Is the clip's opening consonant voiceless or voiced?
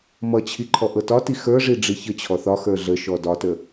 voiced